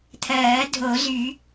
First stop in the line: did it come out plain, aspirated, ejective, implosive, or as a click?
aspirated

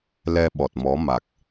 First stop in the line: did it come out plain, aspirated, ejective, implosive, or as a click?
implosive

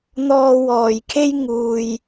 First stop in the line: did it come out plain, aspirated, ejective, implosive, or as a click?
aspirated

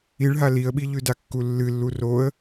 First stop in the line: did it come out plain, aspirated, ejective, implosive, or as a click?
implosive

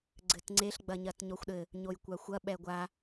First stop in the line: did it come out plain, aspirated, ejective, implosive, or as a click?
click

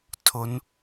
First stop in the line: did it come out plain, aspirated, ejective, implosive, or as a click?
aspirated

